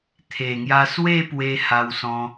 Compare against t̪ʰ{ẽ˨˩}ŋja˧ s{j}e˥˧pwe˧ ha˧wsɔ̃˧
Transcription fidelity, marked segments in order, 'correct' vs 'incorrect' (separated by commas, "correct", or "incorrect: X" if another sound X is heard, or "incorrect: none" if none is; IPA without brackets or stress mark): incorrect: e˨˩, incorrect: w